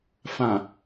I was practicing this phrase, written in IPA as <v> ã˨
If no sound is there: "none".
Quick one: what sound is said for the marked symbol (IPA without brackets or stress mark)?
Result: f